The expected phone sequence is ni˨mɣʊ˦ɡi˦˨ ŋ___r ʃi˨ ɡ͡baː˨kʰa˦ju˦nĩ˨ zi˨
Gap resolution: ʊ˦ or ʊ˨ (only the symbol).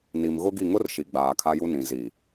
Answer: ʊ˦